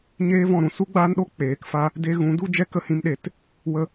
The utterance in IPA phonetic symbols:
ɲ eː˦ v ɔ̃˦˨ ɾ ũ˧ s u˦ ɡ͡b aː˦ n ɗ o˦ k͡p eː˨˦ k f a˦ | d e˧ ɣ ũ˨˦ d u˦ d͡ʒ ɛ˦ k ə˧ h ĩ˧ m ɗ e˨˦ t | w ə˧

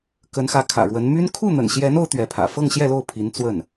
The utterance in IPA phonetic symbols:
k ə˧˥ n x ä˧˥ kʰ ä̰˨˩ ɻ w ə˧˥ n m y˥ n kʰ u˥˩ n̪ ə̰˨˩ n ɕ j ɛ˧˥ n o˥ ʊ̯ t̪ ɥ ɛ˧˥ pʰ ä̰˨˩ f ɤ˥˧ ŋ ɕ j ɛ˥˧ l o˥˩ ʊ̯ pʰ i˧˥ n t͡s w ə˥˩ n

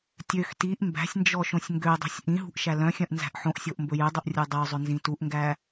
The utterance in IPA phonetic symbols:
tʲ ø x t i ʔ m b æ̤ sʲ n d͡ʒ ɔ ʃ õ sʲ ŋ ɡ ø dˤ ṳ sʲ ʔ ĩ ɦ ṳ ʔ ʃ æ l œ̃ xʲ œ̃ ʔ n z æ̤ ʔ ħ õ ʔ sʲ o ʔ m b ɵ j ø dˤ o ʔ rʲ u dˤ œ zˤ ɵ n z ĩ t u ʔ ŋ ɡ æ

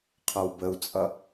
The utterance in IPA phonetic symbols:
qʰ ɒ w b ə u̯ t͡sʼ ʌ

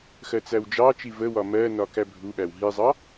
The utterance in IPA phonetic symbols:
x ɜ t͡s æ w d͡ʒ ɑ t͡ʃ i v ə w ɒ m ɜ n ɒ k æ bʱ u ɓ æ w ɦ i zˤ ɑ

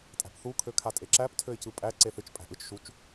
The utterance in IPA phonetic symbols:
tʼ æ̤ p θ u kʰ ø kʰ a tʼ e ǁ æ p tʰ ø ɪ̯ c ɯ pʼ æ ǀ e θ ɨ t͡ʃ pʼ æ̤ ʔ ɯ t͡ʃ ʃ u t͡ʃ

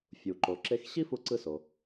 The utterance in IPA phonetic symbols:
fʲ u˩ ǃ o˩ ǁ e˧ x ɕ i˥ f u˧ ǀ ɯ˧ s o˩

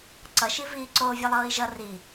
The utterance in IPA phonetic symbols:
ǀ ʌ ʃ i v iː ǀ oː vʲ ɤ lˠ ɤː i̯ ʒ ʌ r i

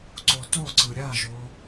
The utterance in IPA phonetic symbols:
ǀ o t o ǀ ɯ ɾʲ a ʒ o

